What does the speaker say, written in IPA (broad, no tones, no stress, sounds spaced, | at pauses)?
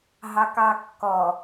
ɦ ɑ k ɑ kː ɔ